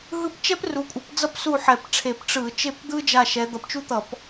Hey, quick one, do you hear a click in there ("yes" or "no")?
no